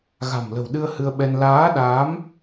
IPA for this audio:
ɣ a̤˨˩ m l ə̤˨˩ w ɗ ɨ˧ ə̯ h ɨ˧ ə̯ ɓ ɛ˧ n l aː˨˦ ɗ aː˨˦ m

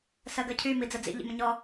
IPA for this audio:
s ɜ ɡ ɜ cʰ y m i d͡z ə d͡z ḭ ʎ ḭ m ə̃ ɲ ɔ

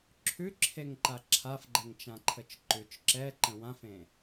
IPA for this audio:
ǁʰ ʉ ǁʰ e ŋ ǃ a ǁʰ a f ɡ͡ǃ ɛ ŋ t͡ʃ ã ǃʰ ə t͡ʃ ǃ ʉ t͡ʃ ǁ ɛ ǃ ə̃ w ã f ẽ

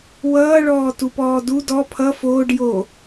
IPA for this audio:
w ʌː ɭ ɔː t u p ɔː d u d ɔ pʰ ʌ f oː ɖ j o

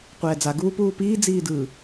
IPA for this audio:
qʷ ɛː d͡z a ɡ uː p uː p iː d͡z iː d ɯ

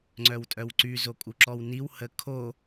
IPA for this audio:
ŋ͡ǀ œ w tʼ œ w ǀ y z o kʼ u ǁ ɔ w n i w h ə kʰ o

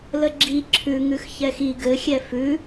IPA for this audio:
l ə ɡ͡ǁ i ǁʰ ʉ ŋ ʉ x ç ɛ x i ɡ ɘ xʲ ɛ f ʉ

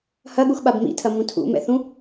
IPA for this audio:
h ɐ ɠ u x ɓ a b m ḭ tʰ ɐ m ũ tʰ ṵ m ɛ̰ θ ũ

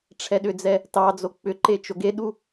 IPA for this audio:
ʈ͡ʂʰ ɛ ɗ ʏ d͡z ɛ | t ɑ d͡z o k͡p ʏ ǃ e t͡ʃ o ɡ e ɗ u

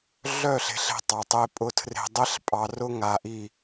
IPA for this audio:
ɮ œ˦˨ ɬ e̤˨ ɬ e̤˦ tˤ ɑ˨ tˤ e˦ pʼ ʊ˦ tʰ r e̤˨ dˤ e˦ ɬ pʼ ɑ˨ r ʊ˦ ŋ a˨ ʔ i˦˨

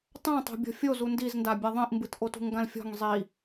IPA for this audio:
tˤ ã tˤ o̤ bʲ ɔ̤ fʲ o z u n d i z n d a bʲ a ðˤ ĩ ʔ m b ɨ t ʔ o t ṳ ŋ ɡ ã l fʲ ɔ̤ ŋ zˤ i

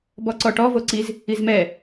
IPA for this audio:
b ɔ ǀ ɔ ʈ ɔ v o ǀ i z | i z m ɛ

